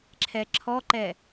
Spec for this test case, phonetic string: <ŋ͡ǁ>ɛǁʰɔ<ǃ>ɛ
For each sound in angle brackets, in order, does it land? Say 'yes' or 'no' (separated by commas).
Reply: no, yes